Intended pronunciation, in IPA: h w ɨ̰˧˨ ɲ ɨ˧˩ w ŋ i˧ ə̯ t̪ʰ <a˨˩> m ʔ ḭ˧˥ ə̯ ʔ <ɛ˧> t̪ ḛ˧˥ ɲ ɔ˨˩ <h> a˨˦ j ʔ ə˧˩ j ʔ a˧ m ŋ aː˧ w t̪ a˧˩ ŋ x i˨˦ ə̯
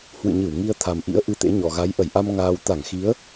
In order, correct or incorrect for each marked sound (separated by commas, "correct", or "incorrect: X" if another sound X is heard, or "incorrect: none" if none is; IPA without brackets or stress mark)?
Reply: correct, incorrect: ɨ˧, incorrect: ɣ